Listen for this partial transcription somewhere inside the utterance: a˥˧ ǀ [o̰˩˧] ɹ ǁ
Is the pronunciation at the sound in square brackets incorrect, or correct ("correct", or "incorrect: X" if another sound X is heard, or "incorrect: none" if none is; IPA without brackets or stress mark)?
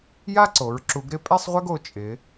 incorrect: o˩˧